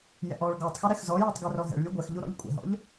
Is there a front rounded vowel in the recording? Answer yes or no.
no